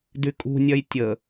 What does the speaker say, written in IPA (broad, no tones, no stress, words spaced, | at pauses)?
dykʼṳnʲœj tʲə